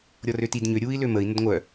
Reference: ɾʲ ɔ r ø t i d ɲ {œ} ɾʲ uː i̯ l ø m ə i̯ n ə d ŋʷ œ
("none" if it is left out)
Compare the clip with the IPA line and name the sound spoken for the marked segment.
ø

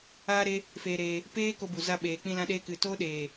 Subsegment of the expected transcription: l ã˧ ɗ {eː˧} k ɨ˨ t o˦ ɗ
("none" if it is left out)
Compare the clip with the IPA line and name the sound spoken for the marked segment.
eː˧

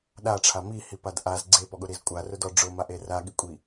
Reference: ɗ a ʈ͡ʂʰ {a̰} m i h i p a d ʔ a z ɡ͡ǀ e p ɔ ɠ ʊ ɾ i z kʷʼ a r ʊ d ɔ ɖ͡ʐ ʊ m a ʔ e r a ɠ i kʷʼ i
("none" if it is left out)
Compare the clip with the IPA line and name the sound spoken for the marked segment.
a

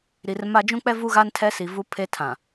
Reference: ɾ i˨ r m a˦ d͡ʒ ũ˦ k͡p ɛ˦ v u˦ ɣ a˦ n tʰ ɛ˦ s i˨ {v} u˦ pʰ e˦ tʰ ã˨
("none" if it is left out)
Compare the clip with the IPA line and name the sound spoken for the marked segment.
v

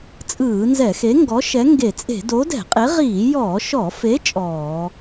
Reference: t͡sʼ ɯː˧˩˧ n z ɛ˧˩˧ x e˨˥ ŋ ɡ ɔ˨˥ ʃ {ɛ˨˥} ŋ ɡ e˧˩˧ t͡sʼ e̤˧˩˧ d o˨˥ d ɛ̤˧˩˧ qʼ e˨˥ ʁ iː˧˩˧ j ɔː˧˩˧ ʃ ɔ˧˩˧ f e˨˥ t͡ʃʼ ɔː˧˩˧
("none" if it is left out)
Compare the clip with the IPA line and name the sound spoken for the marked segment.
ɛ˨˥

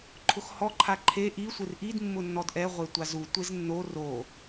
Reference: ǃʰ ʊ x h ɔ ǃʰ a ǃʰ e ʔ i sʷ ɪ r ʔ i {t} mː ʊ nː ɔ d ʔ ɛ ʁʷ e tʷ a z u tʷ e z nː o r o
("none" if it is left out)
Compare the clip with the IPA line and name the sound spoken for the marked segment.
d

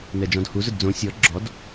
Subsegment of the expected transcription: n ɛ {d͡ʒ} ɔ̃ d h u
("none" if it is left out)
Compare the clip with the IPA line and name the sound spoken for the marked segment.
d͡ʒ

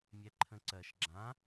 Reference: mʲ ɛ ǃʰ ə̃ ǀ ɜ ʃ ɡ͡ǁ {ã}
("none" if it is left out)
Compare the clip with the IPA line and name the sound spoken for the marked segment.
ã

